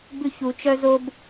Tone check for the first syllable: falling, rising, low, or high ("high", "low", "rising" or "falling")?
high